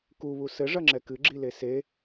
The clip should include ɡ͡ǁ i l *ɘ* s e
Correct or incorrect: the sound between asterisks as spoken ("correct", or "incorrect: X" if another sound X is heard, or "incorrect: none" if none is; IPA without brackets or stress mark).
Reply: incorrect: e